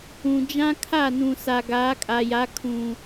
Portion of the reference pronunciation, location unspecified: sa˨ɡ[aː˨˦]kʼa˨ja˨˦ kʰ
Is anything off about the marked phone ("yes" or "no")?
no